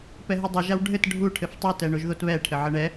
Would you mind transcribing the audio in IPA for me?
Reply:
p ɛ ɦ ɨ dˤ ɘ ʒ a w ɖʱ ɘ t ɖʱ u ʈʰ ɘ f tˤ u t ɛ ɳ o ʒ ð o t β ɛ ʈʰ ɘ ʕ ɘ ɳ ɛ

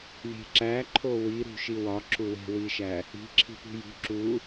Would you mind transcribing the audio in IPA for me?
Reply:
lʲ e̤ ǁ æ ǃʰ o w i ɾ ṳ ʃ i w ɒ ǁ u w e̤ w i ʃ æ | i̤ ǁʰ i̤ p ṳ j ṳ ǁ u

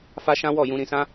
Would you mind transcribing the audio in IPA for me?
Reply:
f a˦ ʃ ã˦ w ɔ˦˨ j ũ˧ ɾ ĩ˧ s ã˦

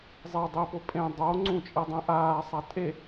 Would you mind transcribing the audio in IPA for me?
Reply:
zˤ e dˤ i p o pʼ ẽ dˤ o ŋ͡ǀ ũ t͡ʃʼ i dˤ ĩ ʔ aː sˤ a tʼ e

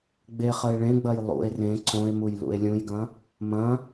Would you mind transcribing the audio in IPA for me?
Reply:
ɡ͡b e χ ə e̯ ɭ ẽ ɡ͡b ɐ j lˠ ṵ e̯ r ẽ ǀ õ e̯ m u j l ṵ e̯ lʲ ũ j ɡ ɐ̃ | m ɐ̃

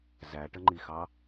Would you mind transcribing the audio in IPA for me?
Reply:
z æ ʈ ə ŋ͡ǃ i x ɑ

